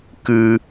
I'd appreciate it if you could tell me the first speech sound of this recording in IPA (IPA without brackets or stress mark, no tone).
k